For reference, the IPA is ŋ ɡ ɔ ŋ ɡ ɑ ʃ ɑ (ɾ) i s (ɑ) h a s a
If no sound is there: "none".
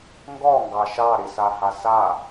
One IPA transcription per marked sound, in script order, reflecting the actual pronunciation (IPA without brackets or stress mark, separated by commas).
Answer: ɾ, a